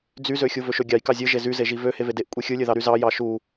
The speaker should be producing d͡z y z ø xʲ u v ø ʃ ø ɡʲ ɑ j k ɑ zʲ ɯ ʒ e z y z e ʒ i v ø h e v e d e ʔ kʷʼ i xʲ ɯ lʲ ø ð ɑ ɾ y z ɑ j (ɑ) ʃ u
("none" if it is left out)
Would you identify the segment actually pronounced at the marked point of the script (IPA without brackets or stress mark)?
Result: ɑ